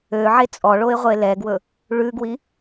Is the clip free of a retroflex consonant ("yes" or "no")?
no